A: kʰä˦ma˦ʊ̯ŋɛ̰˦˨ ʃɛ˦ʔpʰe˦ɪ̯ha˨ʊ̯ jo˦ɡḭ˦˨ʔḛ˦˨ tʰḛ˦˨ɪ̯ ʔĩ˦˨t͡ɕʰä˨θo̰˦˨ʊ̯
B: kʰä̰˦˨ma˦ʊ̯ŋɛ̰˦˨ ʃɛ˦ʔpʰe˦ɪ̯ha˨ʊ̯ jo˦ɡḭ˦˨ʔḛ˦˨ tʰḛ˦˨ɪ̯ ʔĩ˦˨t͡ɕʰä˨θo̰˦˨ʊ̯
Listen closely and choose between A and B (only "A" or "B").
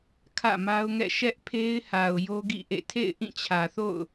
B